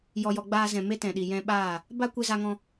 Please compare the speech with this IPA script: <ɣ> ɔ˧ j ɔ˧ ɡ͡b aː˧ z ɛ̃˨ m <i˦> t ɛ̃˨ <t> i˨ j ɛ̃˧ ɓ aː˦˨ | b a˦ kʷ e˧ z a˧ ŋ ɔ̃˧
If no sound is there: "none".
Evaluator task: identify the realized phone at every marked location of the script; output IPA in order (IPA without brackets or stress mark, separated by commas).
j, e˦, ɗ